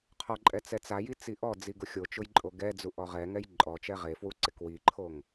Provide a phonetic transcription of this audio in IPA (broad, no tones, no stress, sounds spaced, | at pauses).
qʰ ɔ ǃʼ ɛ t͡s ɛ t͡s a j i t͡s i ʔ ɔ d͡z i ɡ ʊ xʲ o t͡ʃ ʊ j ǃʼ o ɡ ɛ d͡z u ʔ ɔ ʁ ɛ ŋ ɛ j ǃʼ ɔ t͡ʃ ɛ ʁ e f w u ǀ ɪ k w i ǃʰ o ŋ